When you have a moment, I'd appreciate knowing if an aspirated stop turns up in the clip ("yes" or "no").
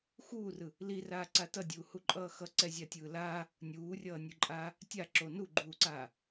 no